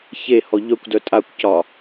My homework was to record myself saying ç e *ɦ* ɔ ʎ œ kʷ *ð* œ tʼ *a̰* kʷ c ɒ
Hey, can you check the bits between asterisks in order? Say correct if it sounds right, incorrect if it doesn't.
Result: incorrect, incorrect, incorrect

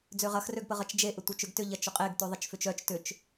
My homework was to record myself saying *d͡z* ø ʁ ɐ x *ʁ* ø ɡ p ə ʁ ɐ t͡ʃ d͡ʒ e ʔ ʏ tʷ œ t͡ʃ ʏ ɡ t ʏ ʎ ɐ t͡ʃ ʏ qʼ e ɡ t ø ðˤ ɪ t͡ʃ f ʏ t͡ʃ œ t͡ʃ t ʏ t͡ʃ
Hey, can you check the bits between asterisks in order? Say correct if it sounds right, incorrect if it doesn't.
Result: correct, incorrect

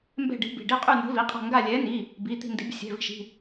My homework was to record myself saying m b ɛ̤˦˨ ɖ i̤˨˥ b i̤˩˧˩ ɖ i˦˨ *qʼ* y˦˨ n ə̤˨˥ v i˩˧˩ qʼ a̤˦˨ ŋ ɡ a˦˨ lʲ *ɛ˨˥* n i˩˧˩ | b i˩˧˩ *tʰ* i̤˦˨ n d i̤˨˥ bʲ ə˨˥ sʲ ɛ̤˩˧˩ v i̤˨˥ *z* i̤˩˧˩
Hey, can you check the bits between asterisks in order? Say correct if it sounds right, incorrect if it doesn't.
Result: correct, correct, incorrect, incorrect

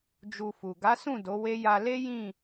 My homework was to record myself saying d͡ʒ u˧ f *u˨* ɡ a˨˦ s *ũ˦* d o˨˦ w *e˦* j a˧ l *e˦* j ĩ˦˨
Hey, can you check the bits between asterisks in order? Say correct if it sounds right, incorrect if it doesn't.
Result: correct, incorrect, correct, correct

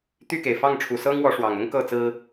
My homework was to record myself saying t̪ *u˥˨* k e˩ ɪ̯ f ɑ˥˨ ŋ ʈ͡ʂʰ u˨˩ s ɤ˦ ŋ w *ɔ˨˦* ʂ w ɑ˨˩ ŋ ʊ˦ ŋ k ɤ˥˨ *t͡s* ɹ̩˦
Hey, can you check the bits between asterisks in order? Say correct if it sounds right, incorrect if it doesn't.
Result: incorrect, correct, correct

